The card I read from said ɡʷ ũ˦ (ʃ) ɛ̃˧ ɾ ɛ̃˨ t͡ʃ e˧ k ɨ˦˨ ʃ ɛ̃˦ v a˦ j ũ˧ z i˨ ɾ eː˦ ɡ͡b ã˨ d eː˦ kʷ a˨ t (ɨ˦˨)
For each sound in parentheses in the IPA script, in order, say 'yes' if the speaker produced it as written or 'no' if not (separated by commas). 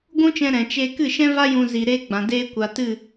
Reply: no, yes